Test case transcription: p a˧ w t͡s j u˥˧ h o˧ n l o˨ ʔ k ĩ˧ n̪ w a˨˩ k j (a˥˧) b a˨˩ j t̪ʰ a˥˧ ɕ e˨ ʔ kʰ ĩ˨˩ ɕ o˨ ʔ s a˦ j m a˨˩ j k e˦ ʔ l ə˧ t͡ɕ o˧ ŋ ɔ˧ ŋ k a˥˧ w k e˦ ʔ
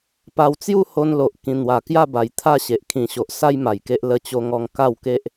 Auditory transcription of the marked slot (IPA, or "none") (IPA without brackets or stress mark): a˥˧